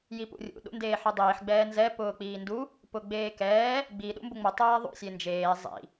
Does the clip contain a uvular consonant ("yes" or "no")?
no